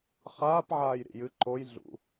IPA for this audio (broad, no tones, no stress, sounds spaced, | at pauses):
χ aː p ʕ aː j ɾ ḭ j ɨ ǃ o j ɮ ṵ